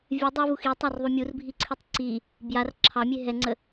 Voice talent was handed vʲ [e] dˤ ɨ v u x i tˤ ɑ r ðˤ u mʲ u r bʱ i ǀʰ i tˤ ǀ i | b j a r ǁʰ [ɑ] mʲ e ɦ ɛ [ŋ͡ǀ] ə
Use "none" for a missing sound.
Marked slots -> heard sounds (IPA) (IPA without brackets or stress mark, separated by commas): ɨ, ɑ, ŋ͡ǀ